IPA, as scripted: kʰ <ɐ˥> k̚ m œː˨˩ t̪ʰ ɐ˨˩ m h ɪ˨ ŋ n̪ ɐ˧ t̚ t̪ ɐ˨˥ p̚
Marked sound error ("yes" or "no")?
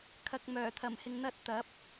yes